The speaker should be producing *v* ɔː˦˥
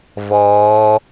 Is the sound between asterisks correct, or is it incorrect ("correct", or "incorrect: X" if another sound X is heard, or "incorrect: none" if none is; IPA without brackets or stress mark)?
correct